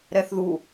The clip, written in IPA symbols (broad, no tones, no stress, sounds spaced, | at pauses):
ɾ ɛ θ ð u